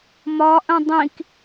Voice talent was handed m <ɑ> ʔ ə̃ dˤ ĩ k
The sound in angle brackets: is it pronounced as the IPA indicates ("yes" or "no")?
no